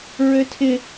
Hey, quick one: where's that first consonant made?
tongue tip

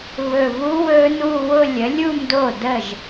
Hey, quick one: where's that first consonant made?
lips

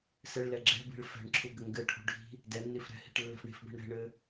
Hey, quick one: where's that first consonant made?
tongue tip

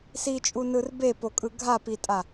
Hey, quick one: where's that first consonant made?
tongue tip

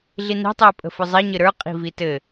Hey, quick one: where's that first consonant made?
tongue tip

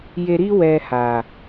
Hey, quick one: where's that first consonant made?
palate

